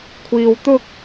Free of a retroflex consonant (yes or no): yes